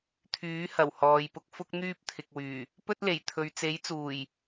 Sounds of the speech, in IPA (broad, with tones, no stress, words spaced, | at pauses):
t̪ʰyː˨˥ hɐ˨˩whɔː˨jpʊ˧k̚ fʊ˥k̚ n̪yː˥p̚t̪ʰɪ˨k̚wyː˨˩ | pɵ˥t̚le˨˩j t̪ʰɵ˨ɥt͡se˨˥jt͡suː˨˩j